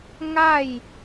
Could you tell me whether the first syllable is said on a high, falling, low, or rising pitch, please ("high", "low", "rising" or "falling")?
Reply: falling